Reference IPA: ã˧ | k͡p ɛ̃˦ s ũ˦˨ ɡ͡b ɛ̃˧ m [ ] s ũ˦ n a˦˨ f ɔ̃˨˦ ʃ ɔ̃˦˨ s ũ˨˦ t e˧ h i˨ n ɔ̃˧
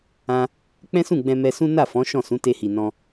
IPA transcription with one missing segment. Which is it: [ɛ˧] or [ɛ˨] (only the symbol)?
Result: ɛ˧